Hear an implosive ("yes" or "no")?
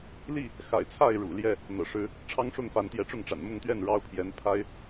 no